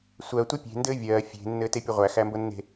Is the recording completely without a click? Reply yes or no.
yes